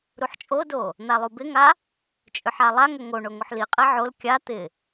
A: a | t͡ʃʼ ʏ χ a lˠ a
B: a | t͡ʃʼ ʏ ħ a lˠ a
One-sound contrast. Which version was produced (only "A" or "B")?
B